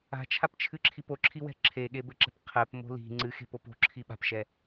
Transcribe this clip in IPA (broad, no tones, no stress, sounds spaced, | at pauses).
a̤ t͡ʃʰ a p t͡ʃʰ ɨ ǁʰ i p o ǁʰ i w ɛ̤ ǁʰ e ɠ e b ɘ ǁ ɛ̤ p qʰ ɛ p m o̤ l i̤ ŋ͡ǀ ɨ x e̤ p o p o̤ ǁʰ i ɓ a̤ p ʃ ɛ